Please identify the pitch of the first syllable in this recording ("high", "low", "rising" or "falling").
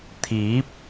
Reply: rising